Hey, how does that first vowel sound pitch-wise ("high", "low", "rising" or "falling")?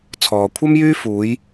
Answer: low